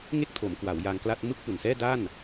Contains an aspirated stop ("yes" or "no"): yes